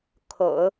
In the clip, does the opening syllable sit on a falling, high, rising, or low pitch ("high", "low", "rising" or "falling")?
low